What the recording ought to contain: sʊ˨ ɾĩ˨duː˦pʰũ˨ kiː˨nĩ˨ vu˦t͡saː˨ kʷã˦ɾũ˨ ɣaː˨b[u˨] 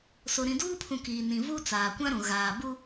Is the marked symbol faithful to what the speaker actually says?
no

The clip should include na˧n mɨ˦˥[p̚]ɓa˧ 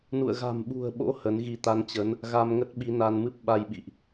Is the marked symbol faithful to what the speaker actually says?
yes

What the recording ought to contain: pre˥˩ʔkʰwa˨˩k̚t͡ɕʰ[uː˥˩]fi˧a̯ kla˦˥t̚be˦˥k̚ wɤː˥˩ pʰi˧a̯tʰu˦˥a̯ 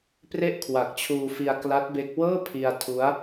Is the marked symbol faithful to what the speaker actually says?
no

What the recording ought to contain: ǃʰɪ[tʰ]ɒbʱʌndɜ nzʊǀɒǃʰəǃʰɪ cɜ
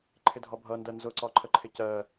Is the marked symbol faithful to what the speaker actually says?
no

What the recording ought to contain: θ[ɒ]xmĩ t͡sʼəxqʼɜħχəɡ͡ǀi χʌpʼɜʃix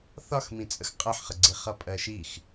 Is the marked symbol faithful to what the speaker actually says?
yes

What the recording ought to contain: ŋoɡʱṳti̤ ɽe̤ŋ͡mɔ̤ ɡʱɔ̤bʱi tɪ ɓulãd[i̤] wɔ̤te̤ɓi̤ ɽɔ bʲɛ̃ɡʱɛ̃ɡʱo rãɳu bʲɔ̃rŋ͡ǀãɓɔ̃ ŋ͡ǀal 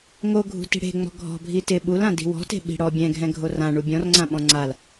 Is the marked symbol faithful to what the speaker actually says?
yes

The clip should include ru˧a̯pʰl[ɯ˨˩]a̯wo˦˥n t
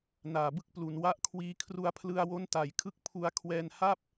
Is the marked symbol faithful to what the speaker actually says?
no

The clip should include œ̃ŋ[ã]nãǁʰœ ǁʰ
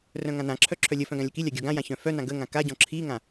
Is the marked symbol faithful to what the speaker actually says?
yes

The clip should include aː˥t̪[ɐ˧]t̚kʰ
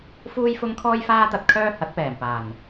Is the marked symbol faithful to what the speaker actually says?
yes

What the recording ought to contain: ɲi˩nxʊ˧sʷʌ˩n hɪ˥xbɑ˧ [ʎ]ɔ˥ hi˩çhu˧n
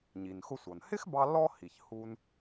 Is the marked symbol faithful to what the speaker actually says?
no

